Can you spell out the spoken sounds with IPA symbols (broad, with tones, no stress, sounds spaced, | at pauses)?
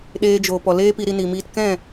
ɗ eː˧ d͡ʒ oː˨ p ɔ˨ l eː˦ p i˧ ɾ i˧ n i˨ m iː˧ t k ɛ̃˦˨